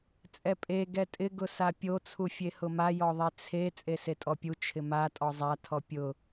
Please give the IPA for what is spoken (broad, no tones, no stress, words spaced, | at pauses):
t͡sʼɛpʼe ɡɛtʼɪ ɡʊsapʲo t͡sʰufʲehʊma jɔðˤet͡sʰe t͡sʼesetʼɔpʲu t͡ʃʰɪma tʼɔzˤa tʰɔpʲʊ